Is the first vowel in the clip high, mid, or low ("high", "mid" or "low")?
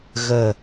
mid